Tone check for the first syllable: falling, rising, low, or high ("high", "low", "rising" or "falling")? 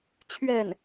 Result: falling